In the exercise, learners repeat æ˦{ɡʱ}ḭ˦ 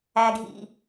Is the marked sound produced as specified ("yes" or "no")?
yes